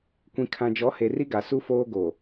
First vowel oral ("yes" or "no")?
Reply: no